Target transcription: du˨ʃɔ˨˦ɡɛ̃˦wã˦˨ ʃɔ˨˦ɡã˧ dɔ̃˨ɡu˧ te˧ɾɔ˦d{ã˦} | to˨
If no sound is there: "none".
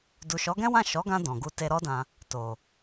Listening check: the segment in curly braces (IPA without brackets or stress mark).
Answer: ã˧